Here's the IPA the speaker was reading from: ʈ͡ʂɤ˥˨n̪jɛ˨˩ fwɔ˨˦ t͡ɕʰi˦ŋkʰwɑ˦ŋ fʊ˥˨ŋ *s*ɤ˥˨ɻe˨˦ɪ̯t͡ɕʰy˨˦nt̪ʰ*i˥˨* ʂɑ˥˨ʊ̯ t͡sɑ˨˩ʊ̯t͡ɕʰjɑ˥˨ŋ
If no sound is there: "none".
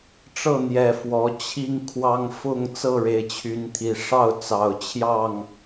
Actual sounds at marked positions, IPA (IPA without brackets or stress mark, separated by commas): t͡s, i˨˩